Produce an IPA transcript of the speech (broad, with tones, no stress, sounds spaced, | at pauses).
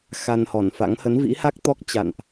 x a˧ n h ɔ˧˩ n f a̰˧˥ ŋ h ə˨˦ n v ḭ˧˥ h a˦˥ k̚ t̪ ɔ˦˥ k̚ t͡ɕ a̰˧˨ n ʔ